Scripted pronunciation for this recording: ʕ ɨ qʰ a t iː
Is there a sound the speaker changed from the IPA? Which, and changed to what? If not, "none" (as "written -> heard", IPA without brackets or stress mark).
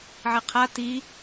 none